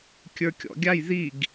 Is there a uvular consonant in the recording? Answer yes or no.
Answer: no